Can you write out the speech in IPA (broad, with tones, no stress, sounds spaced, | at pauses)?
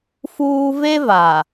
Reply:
f uː˦ v e˦ v a˨